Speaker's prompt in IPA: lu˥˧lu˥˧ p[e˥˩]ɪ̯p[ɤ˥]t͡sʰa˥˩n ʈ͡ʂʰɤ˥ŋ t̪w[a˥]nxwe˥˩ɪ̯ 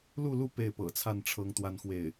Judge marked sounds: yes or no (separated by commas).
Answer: yes, no, yes